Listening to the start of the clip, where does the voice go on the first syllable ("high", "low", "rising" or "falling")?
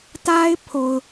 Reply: high